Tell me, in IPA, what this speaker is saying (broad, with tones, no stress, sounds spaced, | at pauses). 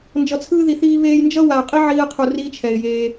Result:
n d͡ʒ ʌ˨ t͡sʰ ɯː˧ ð i˨ θ iː˧ β eː˧ j n d͡ʒ ʌ˦ w a˨ ʊ̯ qʼ i˦ ʕ iː˧ ə̯ qʰ u˨ r iː˦ t͡ʃʰ ɛ˨ ɪ̯ j eː˧